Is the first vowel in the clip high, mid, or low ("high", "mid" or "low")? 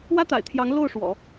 low